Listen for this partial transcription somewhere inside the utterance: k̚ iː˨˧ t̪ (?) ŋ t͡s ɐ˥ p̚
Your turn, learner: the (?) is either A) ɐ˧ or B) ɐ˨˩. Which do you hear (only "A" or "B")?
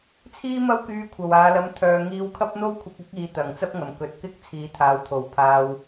B